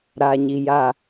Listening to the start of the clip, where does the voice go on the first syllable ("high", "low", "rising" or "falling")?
low